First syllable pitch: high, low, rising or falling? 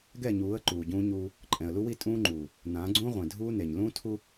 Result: falling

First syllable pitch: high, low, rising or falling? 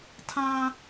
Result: high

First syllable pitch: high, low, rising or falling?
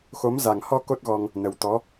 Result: rising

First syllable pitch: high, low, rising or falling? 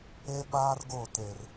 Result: high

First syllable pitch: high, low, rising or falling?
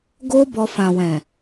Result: high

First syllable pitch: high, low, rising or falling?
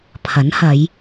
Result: rising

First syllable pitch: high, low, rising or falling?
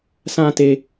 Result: high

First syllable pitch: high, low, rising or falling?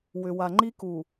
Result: low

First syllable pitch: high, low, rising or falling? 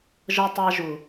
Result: high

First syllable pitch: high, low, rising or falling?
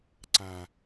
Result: low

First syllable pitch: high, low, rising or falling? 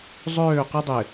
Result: falling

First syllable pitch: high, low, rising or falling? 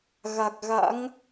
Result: low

